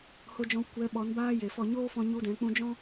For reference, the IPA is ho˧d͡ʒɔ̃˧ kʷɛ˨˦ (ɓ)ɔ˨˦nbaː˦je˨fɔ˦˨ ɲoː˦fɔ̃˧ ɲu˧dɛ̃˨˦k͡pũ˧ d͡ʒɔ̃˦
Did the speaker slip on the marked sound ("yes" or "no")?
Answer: no